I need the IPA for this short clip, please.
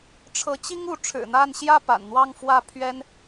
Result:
ʈ͡ʂʰ ɤ˨˦ t͡ɕ i˦ ŋ u˨˦ ʈ͡ʂʰ ɻ̩˨˩ n̪ a˥˨ n ɕ j ä˥˨ p a̰˨˩ n n̪ w ɑ˥˨ ŋ f w ä˥˨ pʰ ɥ ɛ˦ n

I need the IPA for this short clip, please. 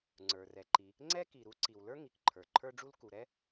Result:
ŋ͡ǀ ə˞˩ r ɛ˩ ǃ i˩ | ŋ͡ǀ ɛ˥ k i˩ ɾ u˥ ǀ i˩ w l ə˞˥ ŋ i˩ k ǃʰ ə˞˩ ǃʰ ə˞˥ ɖ͡ʐ u˥ l k u˩ ɾ ɛ˥

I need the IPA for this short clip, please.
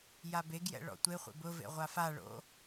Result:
j a b e ɡ j ɛ̰ ɭ ɔ̰ tʷ e χʷ ḛ b ʊ v ḛ ʁʷ a f a ɭ o̰

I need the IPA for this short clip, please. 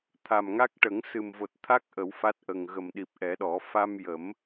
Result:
t̪ʰ a˨˩ m ŋ a˦˥ k̚ ʈ ə˨˩˦ ŋ s ɨ˨˩ m v o˨˩ t̚ t̪ʰ a˦˥ k̚ ʔ ə˨˩˦ w f a˦˥ t̚ ʔ ə˨˩ ŋ ɣ ə˨˩ m ɗ i˨˩ p̚ ʔ ɛ˨˩˦ ɗ ɔ˨˩˦ f a˧ m j ə˨˩˦ m

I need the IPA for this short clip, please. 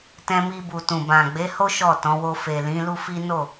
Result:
t ɛ̃˧ m i˧ b u˨ t ũ˨ b ã˨ ɡ͡b e˨˦ h o˦ ʃ ɔ˦˨ t ɔ̃˨˦ w o˧ f e˨ l ĩ˨˦ l u˦ f i˦ n o˦˨

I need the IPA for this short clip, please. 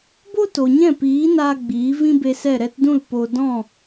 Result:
b o˦ t o˨ ɲ ɛ̃˦˨ p iː˨˦ n aː˧ ɡ͡b iː˨˦ v ĩ˦ b e˧ s ɛ˦˨ ɾ ɛ˧ t d ũ˦˨ l p o˧ d ɔ̃˦˨

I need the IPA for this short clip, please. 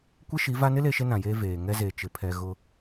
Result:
kʷ e˦ ʃ i˨˦ v a˦ n ɪ˦ l e˦ ʃ e˦ n ã˨ j eː˦ v eː˨ ŋ ɛ˦ z e˨ t͡ʃ ɪ˨ pʰ ɛ˨ ɣ ʊ˦

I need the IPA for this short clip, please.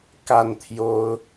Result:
k a˥˩ n t̪ʰ j o˥ ʊ̯

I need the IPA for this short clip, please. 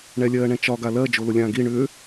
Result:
ɳ ɛ lʲ ɜː ɳ ɛ̃ t͡ʃ ɒ ɡ a l ɜ d͡ʒ o l ʊ lʲ ãː ɡ i ɳ ʏː

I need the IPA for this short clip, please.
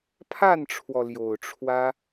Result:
pʰ a˥˩ n ʈ͡ʂʰ w ɔ˩ l j o˨˩ ʊ̯ ʈ͡ʂʰ w ä˥

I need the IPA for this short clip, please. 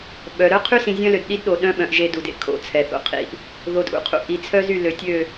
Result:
ɓ œ˨ ɾ œ˦ qʰ y˦ s ĩ˨ zʲ œ̃˦ l ø˨ d ɗ i˦ d ɗ o˨ ɗ œ̃˦ ɓ œ̃˨ ʔ ʒ e˦ d u˨ d ḛ˨ kʰ o̰˨ t͡sʰ ɛ˨ θ o̰˨ qʰ ḭ˦˨ ʔ | ð o˨ d ʔ ṵ˨ qʰ ṵ˨ ʔ i˨ t͡sʰ œ˦ z y˦˨ l ø˨ tʲ ø˦˨

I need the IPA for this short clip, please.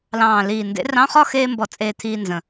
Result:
l ɑ̃ː˨˩ l iː˨˩ n d ḛ˨˥ r ɑ̃˧˥˧ χ ɒ˥ x eː˥ m b ɔ˧ t͡sʼ eː˧ t̪ʰ iː˧ n z ə̃˨˩

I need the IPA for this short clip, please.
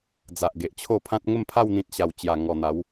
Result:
d͡z a˨ ʔ ɡ e˨ ʔ t͡ɕʰ o˥˧ pʰ ã˦ t̚ ŋ ə˥˧ m pʰ a˥˧ w n̪ ĩ˨ t̚ ɕ a˨˩ w t͡ɕ j a˨˩ ŋ ɔ˨˩ n̪ a˨˦ w

